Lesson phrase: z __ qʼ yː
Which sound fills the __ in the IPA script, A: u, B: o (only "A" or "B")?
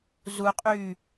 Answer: A